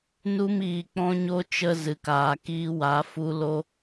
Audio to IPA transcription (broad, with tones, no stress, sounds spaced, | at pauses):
n u˧ m iː˧ k͡p ɔ̃˦ ɲ o˦ t͡ʃ ə˧ z ɨ˨ k aː˨ k iː˧ w a˨˦ f u˧ l o˧